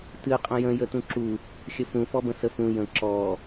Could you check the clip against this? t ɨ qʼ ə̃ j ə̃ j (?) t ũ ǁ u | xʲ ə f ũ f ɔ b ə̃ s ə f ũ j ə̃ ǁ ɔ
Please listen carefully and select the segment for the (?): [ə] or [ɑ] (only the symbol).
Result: ə